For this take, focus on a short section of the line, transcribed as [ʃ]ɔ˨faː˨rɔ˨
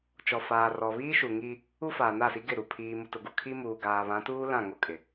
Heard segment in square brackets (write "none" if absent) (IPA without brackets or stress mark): t͡ʃ